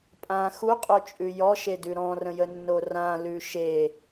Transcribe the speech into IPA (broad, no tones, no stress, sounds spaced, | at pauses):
pʼ ã x u qʼ o t͡ʃʼ ʉ j ɔ ʃ e d ʉ ɾ ɔ̃ r ə̃ j ə nː o r ã l ʉ ʃ e